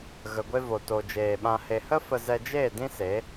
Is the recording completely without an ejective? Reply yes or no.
yes